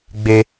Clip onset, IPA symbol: ɡ͡b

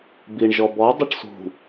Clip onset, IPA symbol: b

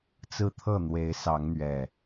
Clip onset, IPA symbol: t͡s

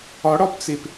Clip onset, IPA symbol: ɒ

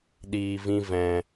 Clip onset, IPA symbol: ɗ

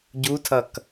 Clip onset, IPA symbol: ɟ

